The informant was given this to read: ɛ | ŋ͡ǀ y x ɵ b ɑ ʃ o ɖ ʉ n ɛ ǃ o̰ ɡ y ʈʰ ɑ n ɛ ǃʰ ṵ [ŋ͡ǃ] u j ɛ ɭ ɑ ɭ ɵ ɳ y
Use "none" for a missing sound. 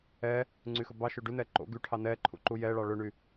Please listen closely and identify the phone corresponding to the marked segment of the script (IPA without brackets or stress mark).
ǃ